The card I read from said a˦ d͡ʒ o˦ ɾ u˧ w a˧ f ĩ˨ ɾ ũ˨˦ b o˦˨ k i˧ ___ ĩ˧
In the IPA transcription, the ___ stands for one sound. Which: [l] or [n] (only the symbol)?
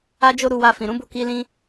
l